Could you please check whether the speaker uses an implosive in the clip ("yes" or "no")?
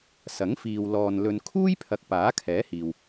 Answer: no